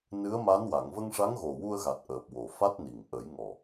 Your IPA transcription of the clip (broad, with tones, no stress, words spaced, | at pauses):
nɨ˧˥ə̯ma˧˥nwa˨˩˨ŋ və˧ŋʂa˧˥ŋɣo˨˩ wu˧ə̯ɣa˨˩t̚ʔəː˨˩p̚ wo˨˩fa˦˥t̚ni˨˩ŋ ʔə˨˩˦j ŋɔ˨˩